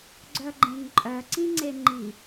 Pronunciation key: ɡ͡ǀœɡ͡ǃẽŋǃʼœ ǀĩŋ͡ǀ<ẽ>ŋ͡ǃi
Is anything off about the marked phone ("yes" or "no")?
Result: yes